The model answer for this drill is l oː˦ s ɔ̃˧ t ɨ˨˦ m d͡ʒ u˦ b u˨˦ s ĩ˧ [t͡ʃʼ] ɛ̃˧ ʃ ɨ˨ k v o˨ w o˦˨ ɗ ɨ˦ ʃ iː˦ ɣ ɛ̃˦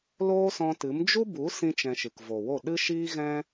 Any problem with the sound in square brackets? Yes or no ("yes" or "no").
yes